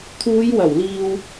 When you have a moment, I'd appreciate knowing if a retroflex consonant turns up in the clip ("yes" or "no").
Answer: no